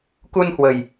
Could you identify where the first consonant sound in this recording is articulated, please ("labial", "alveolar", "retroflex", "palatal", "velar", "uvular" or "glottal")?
velar